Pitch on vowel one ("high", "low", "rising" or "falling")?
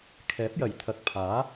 rising